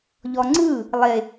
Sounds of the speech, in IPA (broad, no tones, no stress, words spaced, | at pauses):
ʎɔŋ͡ǀɯ | lˠe